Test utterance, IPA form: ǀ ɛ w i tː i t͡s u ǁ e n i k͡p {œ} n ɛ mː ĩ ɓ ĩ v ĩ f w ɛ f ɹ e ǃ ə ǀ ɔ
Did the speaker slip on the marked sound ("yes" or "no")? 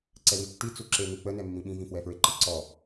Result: yes